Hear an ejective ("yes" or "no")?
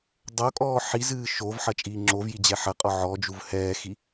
yes